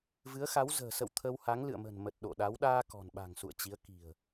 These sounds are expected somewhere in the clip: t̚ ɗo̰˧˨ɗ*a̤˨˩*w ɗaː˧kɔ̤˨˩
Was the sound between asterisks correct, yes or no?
no